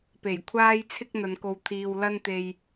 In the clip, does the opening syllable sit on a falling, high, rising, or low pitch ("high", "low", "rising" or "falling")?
low